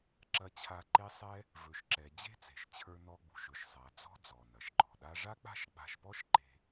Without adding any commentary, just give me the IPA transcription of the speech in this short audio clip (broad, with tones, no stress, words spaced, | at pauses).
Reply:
ǁɐ˧t͡ɕʰa˧ ǃe˧sˤɛ˧ | vɵ˩ʃǁɛ˩ d͡ʑe̤˥t͡se̤˩ʃt͡ɕʰə˞˧nɔ˧ ɡ͡bṳ˩ʃɵ˩ʃsˤa˩ d͡zɔ̤˥ d͡zɔ˩nɐ˩ʃǃɔ̤˩ɗa˥ ʐa˥k͡pa̤˥ʃɡ͡ba̤˧ʃpɔ˥ʃ ǃe̤˧